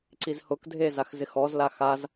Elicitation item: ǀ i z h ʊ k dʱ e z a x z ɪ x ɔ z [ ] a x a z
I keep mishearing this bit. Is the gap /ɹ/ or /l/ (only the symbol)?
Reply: l